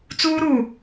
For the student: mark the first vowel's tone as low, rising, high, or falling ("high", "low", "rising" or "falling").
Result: high